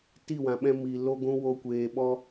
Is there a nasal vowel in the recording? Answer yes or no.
yes